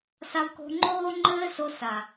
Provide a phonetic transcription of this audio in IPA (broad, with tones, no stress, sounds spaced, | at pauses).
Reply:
s a˧ v k o̤˧ ŋ͡ǃ oː˦ ŋ͡ǃ ɘː˦ s o˧ s a˨